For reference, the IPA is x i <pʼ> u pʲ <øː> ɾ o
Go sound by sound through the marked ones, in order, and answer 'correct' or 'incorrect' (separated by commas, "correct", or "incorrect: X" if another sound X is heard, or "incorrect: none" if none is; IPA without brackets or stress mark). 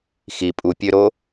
correct, incorrect: ø